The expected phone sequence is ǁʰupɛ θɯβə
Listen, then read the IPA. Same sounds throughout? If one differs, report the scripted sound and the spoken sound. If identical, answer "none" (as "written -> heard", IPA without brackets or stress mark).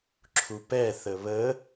ɯ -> ə